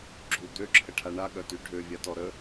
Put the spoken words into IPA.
ɡ͡ǁu d̪øǁʰəʈʰa ɳaɠœty ɖʱøvʲatɔ ɾə

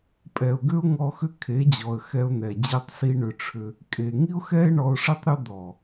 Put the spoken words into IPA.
pʼɛ˨ʊ̯ɡʏ˦ʊ̯ŋɔ˧ xʏ˦kʰe˨˦d͡ʑɔ˨ə̯ xɛ˧ʊ̯n̪ɛ˨ d͡ʑe˦tˤsi˦ ɳʏ˧ʈ͡ʂʰʏ˧ | kʼe˨ ŋi˦ʊ̯xɛ˦ɪ̯ ɳɔ˧ʊ̯ʂi˦tˤ ɾʏ˦ d̪ɔ˨

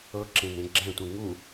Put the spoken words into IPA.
ɤǁẽnẽ ɡ͡ǁɛ̃tʷẽ ŋu

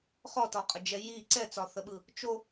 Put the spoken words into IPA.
χɔtɔqʼəd͡ʒɛ ji ǀɛt͡sɒθəɓɯ | t͡ʃo

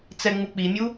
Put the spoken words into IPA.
t͡sɛŋ͡muk͡pimʲu

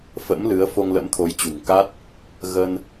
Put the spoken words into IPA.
fə̰˧˥mlɨ˨˦ə̯ fo˧ŋlə̰˧˥mt̪ʰo˨˦jt͡ɕṳ˨˩ŋ ka˦˥t̚ | ɣə˧n

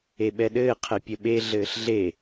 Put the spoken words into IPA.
eɓɛɗɘː qʰɛpʲəɓe ɮɘːɬɮe

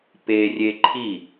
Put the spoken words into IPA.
perʲe ǃʰi

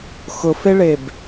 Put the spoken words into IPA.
xʊfeɭeb

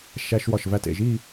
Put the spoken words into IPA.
ʃæ˧ʃwɒ˧˩ʃ væ˧tḛ˧˩ ʒi˥˧

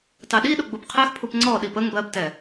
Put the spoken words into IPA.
tɑɗiɗʊ ɡ͡bubqʰɛxpʰup ŋ͡ǀɔɗi pəŋ bɜbtɛ

